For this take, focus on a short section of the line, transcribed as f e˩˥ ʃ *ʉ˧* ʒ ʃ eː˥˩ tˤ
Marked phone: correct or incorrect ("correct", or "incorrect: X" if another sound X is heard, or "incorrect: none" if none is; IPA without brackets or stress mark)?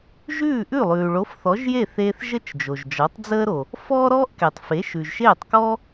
incorrect: ʉ˩